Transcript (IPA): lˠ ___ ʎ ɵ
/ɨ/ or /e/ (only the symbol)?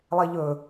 e